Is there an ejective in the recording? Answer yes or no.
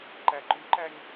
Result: no